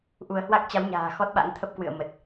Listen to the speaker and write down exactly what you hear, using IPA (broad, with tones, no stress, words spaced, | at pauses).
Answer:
ʔu˧ə̯ hwa˦˥k̚t͡ɕa˨˦wɲa̤ː˨˩ xɔ˦˥t̚ɓa̰˧˥ŋ t̪ʰə˦˥p̚kwɨ̰˧˨ə̯mə˨˩t̚